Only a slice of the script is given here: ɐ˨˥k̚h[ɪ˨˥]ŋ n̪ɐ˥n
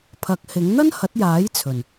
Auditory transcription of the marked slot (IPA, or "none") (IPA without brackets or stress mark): ɪ˨˥